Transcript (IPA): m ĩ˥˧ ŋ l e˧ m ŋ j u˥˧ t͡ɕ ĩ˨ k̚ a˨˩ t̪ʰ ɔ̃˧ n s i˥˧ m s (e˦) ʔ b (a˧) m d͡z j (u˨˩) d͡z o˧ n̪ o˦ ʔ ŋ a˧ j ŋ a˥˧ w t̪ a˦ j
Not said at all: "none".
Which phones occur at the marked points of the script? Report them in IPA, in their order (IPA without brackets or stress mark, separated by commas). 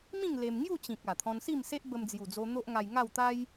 e˦, ə˧, u˨˩